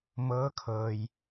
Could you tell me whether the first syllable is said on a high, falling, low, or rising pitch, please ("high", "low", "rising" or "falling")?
rising